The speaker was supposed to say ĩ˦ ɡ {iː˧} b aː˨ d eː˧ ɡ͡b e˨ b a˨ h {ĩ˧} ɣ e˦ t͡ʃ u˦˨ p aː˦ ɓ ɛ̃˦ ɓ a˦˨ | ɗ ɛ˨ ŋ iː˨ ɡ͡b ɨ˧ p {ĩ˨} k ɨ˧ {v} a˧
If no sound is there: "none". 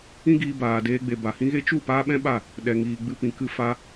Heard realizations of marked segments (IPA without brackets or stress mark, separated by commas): iː˧, ĩ˦, ĩ˨, f